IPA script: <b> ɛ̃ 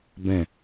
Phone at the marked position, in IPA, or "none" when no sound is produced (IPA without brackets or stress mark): b